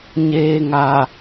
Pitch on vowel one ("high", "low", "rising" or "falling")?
low